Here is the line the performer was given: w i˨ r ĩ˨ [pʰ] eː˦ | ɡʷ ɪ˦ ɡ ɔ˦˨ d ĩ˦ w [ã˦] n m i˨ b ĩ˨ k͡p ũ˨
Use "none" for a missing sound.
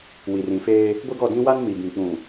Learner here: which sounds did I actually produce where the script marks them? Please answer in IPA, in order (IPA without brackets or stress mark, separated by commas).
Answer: f, a˦